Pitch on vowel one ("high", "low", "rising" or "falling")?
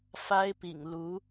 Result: high